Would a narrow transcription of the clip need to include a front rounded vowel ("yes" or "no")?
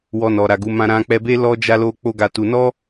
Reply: no